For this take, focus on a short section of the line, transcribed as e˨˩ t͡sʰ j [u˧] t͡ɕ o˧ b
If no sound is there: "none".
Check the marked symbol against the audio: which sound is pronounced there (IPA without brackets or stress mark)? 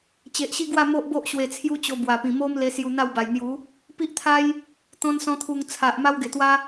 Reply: u˦